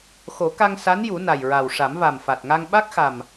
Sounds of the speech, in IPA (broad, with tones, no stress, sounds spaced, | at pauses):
x o˨˩˦ k a˧ ŋ s a˧˥ n j u˨˩˦ n a˨˩ j ɹ a˨˩ w ʂ a˨˩˦ m v a˨˩ m f a˨˩ t̚ ŋ a˧ ŋ ɓ a˦˥ k̚ x a˨˩ m